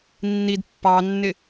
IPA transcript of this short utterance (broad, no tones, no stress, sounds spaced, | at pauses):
nː i d pː ɑ nː ɪ